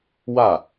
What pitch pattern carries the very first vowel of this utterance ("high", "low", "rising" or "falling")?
falling